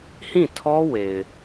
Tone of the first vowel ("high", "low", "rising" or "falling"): falling